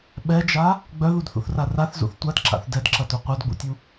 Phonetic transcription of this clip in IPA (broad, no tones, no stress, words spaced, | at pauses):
ɓɛd͡ʒa | ɡ͡bœðudθṵθra raθzṵθ tʷadǁa̰θ dɛdǁɐto qʷœdɡ͡bṵtʲu